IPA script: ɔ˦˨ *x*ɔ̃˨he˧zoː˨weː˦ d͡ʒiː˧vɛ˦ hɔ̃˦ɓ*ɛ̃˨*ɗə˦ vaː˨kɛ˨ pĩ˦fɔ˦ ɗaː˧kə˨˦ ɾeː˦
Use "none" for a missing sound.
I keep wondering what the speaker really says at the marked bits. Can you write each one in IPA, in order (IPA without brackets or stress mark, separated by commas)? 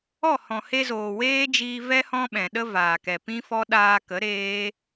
h, ɛ̃˨